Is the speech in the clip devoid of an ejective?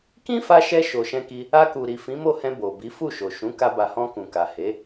yes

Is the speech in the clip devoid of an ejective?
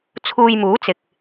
yes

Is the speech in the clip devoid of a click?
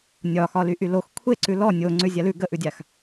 no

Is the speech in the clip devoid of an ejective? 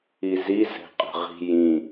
no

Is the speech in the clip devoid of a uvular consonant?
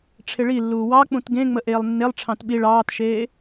yes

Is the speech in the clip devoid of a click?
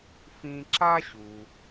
no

